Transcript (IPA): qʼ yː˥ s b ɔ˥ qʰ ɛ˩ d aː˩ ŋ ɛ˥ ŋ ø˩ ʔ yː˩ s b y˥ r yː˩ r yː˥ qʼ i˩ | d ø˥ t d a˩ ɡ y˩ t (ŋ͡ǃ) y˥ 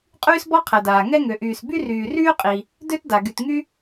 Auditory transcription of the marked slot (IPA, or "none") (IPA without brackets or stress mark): ŋ